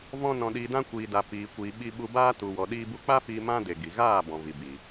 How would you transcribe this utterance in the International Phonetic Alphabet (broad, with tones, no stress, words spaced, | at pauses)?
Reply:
vɔ̃˧ nɔ̃˨ɗiː˨dã˧ kʷiː˨da˨ piː˨kʷiː˨ ɓi˧ɓu˧ baː˧tu˨wɔ˨ ɗiː˧bu˧k͡pa˦fiː˧ mã˦de˨ ɡi˨ ɣaː˦˨ bɔ̃˨vi˨biː˨